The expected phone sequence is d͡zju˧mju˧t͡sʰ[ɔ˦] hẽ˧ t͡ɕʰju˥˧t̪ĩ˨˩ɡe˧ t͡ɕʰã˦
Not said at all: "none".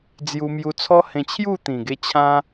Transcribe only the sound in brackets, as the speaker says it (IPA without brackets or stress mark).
ɔ˦